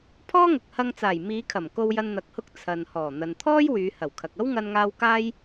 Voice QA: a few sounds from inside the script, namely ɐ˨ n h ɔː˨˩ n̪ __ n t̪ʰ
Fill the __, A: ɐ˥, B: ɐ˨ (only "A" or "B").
B